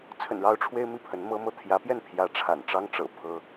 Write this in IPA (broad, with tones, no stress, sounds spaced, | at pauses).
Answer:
t͡sʰ ə̰˨˩ n ɻ ɑ˧˥ ʊ̯ ʈ͡ʂʰ w e˥ ɪ̯ m i˥˩ pʰ ə˧˥ n m ɤ˥ m ɤ˥ t̪ʰ j ä˧˥ p j ɛ˥˩ n pʰ j ä˧˥ ʈ͡ʂʰ a̰˨˩ n ʈ͡ʂ ɑ˥ ŋ ʈ͡ʂ ɤ̰˨˩ pʰ ɤ˥